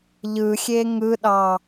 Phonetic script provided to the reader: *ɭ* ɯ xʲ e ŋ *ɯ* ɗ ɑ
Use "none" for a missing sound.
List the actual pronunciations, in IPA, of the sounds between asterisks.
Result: ʎ, ɯ

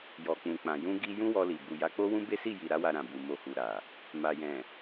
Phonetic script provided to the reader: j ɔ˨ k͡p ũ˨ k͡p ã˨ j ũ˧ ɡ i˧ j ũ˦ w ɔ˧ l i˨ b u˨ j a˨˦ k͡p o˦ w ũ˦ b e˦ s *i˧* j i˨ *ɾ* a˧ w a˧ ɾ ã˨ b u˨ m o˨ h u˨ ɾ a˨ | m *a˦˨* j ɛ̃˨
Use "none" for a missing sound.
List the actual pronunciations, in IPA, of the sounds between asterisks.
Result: i˦˨, ɾ, a˨

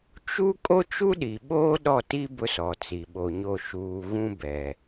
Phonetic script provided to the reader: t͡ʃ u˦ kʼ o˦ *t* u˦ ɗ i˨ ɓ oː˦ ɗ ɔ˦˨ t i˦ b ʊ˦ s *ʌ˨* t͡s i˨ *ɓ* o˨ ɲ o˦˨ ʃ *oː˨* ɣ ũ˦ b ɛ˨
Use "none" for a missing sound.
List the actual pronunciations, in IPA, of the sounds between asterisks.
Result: t͡ʃ, ɔ˨, ɓ, uː˨

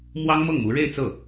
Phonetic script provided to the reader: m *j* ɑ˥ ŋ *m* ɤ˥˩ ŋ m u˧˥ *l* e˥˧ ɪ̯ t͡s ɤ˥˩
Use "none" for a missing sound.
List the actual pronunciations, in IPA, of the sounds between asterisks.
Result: w, m, ɻ

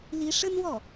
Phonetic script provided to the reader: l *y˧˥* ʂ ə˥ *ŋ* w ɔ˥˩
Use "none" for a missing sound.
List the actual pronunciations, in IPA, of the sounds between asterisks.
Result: i˧˥, n

